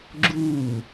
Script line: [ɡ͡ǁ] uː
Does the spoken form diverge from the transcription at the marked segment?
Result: no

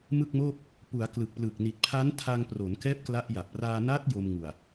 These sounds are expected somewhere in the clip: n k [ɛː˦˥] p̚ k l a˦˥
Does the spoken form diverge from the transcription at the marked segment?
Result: no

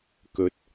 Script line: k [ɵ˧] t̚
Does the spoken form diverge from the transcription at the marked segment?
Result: no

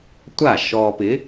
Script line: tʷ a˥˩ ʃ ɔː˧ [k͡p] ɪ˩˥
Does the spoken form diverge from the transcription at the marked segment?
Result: yes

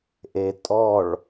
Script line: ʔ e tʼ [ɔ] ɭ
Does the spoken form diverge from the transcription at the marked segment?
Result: no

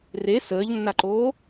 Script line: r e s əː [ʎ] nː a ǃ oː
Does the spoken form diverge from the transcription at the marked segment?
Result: no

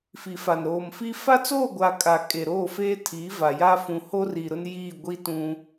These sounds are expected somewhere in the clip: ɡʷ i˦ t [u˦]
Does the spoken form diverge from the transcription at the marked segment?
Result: yes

